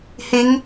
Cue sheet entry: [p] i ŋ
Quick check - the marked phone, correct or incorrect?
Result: incorrect